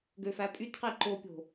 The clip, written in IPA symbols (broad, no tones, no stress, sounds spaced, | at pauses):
ɡ ø f æ pʼ y t q i ǃ o pʲ o̤